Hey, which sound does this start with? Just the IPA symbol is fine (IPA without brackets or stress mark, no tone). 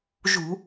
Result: ʒ